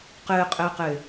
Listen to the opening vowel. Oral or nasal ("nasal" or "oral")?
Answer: oral